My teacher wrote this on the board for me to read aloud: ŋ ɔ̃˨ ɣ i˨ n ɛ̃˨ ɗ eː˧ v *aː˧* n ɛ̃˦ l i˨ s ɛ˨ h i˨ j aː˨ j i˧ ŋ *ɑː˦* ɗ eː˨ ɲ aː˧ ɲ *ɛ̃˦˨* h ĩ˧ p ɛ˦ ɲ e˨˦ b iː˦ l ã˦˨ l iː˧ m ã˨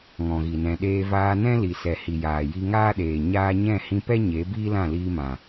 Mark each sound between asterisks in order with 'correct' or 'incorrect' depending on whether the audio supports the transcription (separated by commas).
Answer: correct, incorrect, correct